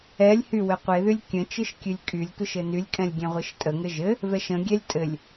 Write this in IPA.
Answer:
ɛ lʲ h y w ɘ qʷ e ð y lʲ kʲ ə̃ t͡ʃ ɨ ʃ kʲ ɨ lʲ kʼ y lʲ tʷ ɨ ʃ ɘ n y lʲ kʼ ɛ̃ lʲ ɡʲ ɛ̃ ʁʷ ɨ ʃ tʼ ə ŋ ɘ ʒ ɘ | v ɛ ʃ ə̃ ɡʲ ɛ lʲ tʼ ɘ lʲ

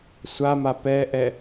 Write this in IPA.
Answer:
sʷ a m a p ɛ ʔ ɛ

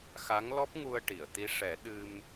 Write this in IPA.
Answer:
x a˧˥ ŋ l ɔ˦˥ p̚ ŋ u˧ ə̯ ʈ i˨˩˨ ə̯ t̪ i˧˥ ʂ ɛ˨˩˦ ɗ ɨ˧ m

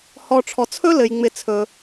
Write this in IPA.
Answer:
h ɔ˨ ʈ͡ʂʰ ɔ˩ t͡sʰ ɵ˥ l ɘ˩ j ŋ͡m ɪ˨ t͡sʰ ɵ˩

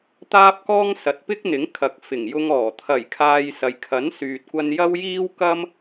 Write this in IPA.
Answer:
t̪ aː˥ p̚ k ɔː˥ ŋ s ɐ˨˥ t̚ p ɪ˥ k̚ n̪ ɪ˨˥ ŋ kʰ ɐ˨˥ k̚ f ɪ˨˩ ŋ j ʊ˧ ŋ ɔː˨˩ t̪ʰ ɐ˨˩ j kʰ aː˨ j s ɐ˨ j kʰ ɐ˨˥ n s yː˨ t̚ kʷ ɐ˧ n j ɐ˥ w j iː˥ w k ɐ˥ m

